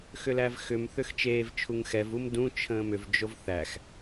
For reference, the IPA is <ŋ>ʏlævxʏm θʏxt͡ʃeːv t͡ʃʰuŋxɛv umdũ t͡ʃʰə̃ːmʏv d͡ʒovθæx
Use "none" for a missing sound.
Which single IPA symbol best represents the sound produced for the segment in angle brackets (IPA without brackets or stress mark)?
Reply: x